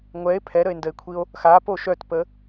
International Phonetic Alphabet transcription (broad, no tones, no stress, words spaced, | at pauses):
ŋʷɛe̯ pʰɛɾəe̯ndəe̯kʷʰio̯ | xapo ʃœtpə